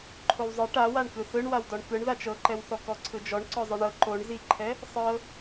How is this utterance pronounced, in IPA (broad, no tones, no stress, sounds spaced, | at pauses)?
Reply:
ǃʰ o w zˤ ɯ ʈ a w a ɳ k ɯ θ ɯ ɳ w a w d ɔ ɳ k ɯ ɳ ð a t͡ʃ ɤ ǃ ɛ w θ ɔ k ɔ ǀʰ ɯ d͡ʒ ɔ ɳ ǀ ɔ zˤ ɯ ɳ ɤ ǃ o ɳ z i ǃʰ ɛ | sˤ ɤ